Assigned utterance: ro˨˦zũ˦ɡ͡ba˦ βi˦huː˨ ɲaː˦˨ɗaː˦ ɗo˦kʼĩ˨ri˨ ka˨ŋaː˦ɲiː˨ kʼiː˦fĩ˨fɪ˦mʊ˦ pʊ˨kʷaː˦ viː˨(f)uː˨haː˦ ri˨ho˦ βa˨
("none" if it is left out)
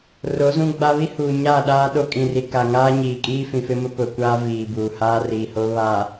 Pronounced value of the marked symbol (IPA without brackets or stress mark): b